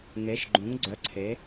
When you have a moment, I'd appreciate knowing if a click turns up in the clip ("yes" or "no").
yes